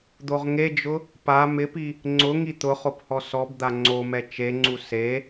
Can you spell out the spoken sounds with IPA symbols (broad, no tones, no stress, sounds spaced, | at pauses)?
d̪ o ʁ ŋ e d͡ʒ ʊ | p a m ɪ p i | ŋ͡ǀ ʊ ŋ i t̪ ʊ χ o p h ɔ s ɔ b d̪ a ŋ͡ǀ o m ɛ t͡ʃ e ŋ͡ǀ u s e